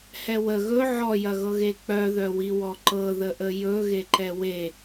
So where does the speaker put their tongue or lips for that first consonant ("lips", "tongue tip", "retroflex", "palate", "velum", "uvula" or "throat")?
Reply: throat